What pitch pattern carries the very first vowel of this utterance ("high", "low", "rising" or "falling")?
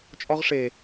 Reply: high